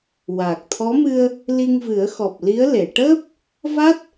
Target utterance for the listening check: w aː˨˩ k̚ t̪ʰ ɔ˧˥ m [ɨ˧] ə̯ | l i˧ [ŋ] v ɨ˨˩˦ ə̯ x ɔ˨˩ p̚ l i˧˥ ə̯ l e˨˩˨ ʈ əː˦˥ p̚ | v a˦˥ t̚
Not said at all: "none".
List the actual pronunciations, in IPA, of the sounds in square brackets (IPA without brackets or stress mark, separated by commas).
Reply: ɨ˧, ŋ